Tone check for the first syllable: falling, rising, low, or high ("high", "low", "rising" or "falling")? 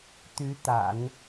rising